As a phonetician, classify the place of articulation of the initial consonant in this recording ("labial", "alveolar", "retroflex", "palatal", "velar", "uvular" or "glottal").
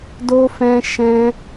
alveolar